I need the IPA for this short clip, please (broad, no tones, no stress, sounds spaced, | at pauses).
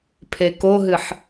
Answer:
pʰ e k o ɦ ɨ ħ